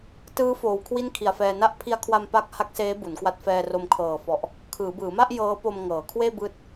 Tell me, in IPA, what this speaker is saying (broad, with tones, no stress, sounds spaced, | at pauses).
t ɯː˦˥ f oː˩˦ w kʰ w i˥˩ n kʰ i˨˩ a̯ f ɛː˧ n a˦˥ ʔ pʰ i˧ a̯ kʰ w a˧ m p a˥˩ k̚ h a˦˥ k̚ s eː˦˥ b u˩˦ n k w a˦˥ t̚ f ɛː˧ r o˧ m kʰ ɤː˨˩ f ɔ˨˩ ʔ | kʰ ɯː˩˦ b ɯː˩˦ m a˥˩ ʔ j ɤː˦˥ p o˧ m ŋ ɤː˩˦ kʰ w eː˥˩ b ɯː˦˥ t̚